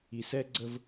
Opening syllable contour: low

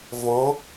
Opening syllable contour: rising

